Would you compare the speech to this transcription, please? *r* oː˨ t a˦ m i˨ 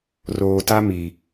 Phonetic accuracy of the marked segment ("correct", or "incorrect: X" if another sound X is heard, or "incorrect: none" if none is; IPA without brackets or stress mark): correct